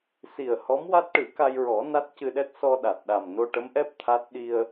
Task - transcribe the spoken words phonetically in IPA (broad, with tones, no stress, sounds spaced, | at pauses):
s i˨˩ ə̯ h ɔ˧˥ m w a˦˥ t̚ ʈ ɨ˨˩˦ k a˧ j ɹ ɔ˨˩˦ n a˦˥ t̚ c ɨ˧ ɗ ɛ˦˥ t̚ s ɔ˧ ɗ a˨˩ t̚ ɗ a˨˩ m n o˧ ʈ ə˧˥ m ʔ ɛ˦˥ p̚ t̪ʰ a˦˥ t̚ ɗ i˧ ə̯